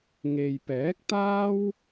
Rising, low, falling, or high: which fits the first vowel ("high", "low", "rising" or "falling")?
low